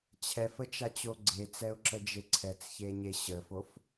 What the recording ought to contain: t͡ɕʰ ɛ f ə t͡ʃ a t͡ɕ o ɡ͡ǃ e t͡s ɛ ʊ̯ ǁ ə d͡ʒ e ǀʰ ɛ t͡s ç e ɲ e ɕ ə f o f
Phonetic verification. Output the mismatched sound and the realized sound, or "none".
ɡ͡ǃ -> ɡ͡ǀ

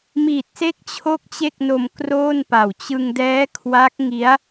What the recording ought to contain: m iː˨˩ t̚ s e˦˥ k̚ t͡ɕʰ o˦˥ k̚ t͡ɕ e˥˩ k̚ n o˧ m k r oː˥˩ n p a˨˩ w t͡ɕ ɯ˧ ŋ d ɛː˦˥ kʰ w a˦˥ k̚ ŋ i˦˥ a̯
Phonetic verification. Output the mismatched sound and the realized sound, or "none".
none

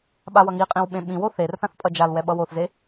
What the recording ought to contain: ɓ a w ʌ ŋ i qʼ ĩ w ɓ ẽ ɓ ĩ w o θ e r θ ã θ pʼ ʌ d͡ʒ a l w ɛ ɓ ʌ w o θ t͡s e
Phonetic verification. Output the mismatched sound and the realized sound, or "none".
t͡s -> z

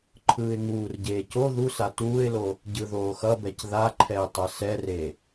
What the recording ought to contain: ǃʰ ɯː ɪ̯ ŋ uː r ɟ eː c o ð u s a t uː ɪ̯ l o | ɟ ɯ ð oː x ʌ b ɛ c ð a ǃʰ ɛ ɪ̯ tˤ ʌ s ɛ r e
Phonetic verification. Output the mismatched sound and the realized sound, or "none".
none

